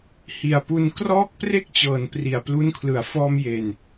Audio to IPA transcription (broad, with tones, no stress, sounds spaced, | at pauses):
h i˨˩ a̯ p u˧ n k r ɔː˦˥ k̚ p r e˦˥ k̚ t͡ɕ ɤː˩˦ n p r i˨˩ a̯ p l u˦˥ n kʰ l ɯ˨˩ a̯ f ɔː˧ m j e˨˩ n